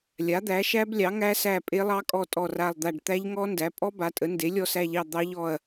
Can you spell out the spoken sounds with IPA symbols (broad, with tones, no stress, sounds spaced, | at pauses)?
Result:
lʲ a˩˥ d̪ æ˩˥ ʃ æ˦˥ b lʲ ɑ˩˥ ŋ æ˦˥ s æ˦˨ pʼ e˦˥ lˠ ɑ˦˥ kʼ ɔ˦˨ tʼ ɔ˦˨ r a˦˨ lˠ d̪ a˦˨ ɖ t̪ æ˦˥ ʎ ŋ ɔ˦˥ n d æ˩˥ pʼ ɔ˦˥ b a˩˥ tʼ ə˩˥ n d e˩˥ lʲ ɔ˦˨ s æ˦˨ ʎ ɑ˦˨ d̪ ɑ˦˥ ʎ ɔ˦˨ ɐ̯